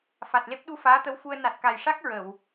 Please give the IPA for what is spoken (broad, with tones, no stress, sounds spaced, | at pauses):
f a˨˩ t̚ l e˦˥ p̚ ɗ u˧ f aː˧˥ t̪ ə˧˥ w f u˧ ə̯ n a˨˩ t̚ k a˨˩ j ʂ a˦˥ k̚ ɹ ə˨˩˨ w